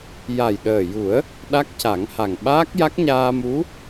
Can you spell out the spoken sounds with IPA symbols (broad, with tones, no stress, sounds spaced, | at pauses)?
j a˨˩ j ɗ əː˨˩ j u˨˩˦ ə̯ | ɗ a˦˥ k̚ c a˨˩˦ ŋ h a˨˩ ŋ ɓ aː˦˥ k̚ j a˦˥ k̚ ɲ aː˧ m u˧˥